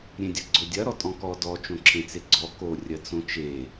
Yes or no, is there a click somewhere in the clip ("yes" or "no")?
yes